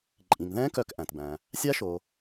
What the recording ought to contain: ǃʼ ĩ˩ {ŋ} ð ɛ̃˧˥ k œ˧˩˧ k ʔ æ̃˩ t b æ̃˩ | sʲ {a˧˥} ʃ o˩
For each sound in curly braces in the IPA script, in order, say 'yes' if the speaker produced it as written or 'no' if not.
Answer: yes, yes

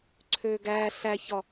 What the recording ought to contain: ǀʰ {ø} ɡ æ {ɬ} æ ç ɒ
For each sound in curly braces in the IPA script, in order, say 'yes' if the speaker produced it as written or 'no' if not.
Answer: yes, yes

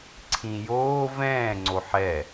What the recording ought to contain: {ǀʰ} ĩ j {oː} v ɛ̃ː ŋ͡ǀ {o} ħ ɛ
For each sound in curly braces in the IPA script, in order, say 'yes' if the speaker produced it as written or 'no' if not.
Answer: yes, yes, yes

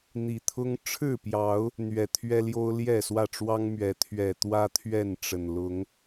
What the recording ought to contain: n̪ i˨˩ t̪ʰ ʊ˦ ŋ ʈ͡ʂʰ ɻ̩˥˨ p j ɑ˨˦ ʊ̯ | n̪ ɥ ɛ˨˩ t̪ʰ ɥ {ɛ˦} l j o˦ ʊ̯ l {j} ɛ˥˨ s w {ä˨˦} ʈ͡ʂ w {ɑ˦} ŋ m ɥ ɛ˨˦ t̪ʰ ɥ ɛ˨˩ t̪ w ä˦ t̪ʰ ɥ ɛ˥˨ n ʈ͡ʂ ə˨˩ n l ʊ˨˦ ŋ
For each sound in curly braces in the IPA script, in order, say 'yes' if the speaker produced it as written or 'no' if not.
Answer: yes, yes, no, yes

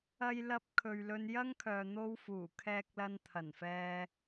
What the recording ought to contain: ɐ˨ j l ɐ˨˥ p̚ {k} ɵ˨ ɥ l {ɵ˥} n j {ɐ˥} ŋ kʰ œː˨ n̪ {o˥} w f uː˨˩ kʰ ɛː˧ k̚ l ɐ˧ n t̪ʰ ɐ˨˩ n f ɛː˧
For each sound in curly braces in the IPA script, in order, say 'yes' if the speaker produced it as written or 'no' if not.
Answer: no, no, yes, yes

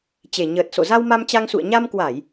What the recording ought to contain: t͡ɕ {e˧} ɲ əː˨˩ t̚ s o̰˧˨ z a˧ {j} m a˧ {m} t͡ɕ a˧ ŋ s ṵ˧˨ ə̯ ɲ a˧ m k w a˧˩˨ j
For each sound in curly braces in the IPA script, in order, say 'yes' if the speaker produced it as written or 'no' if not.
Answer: no, no, yes

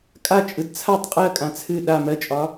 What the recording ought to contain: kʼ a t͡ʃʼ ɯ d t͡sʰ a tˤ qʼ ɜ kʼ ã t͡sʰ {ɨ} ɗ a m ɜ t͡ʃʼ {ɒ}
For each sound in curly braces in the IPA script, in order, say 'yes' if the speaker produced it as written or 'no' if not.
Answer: yes, yes

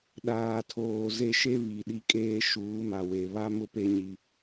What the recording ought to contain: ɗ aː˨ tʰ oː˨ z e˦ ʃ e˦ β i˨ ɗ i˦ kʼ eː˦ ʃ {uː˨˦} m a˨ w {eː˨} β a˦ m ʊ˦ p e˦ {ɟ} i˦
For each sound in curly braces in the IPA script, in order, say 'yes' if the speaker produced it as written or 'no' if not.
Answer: yes, no, no

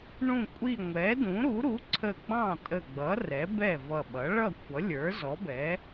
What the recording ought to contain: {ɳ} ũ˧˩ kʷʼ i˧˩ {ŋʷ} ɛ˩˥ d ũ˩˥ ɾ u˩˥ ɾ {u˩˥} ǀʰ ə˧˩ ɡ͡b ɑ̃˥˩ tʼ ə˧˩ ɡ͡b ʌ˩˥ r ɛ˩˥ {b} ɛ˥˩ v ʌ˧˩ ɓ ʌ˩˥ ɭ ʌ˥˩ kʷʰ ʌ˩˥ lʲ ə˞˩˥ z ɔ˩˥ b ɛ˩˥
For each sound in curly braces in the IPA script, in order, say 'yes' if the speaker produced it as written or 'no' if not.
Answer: yes, yes, yes, yes

